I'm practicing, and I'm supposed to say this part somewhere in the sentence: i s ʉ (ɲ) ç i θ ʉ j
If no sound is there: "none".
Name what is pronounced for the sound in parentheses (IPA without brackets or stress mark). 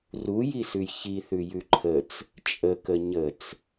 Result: j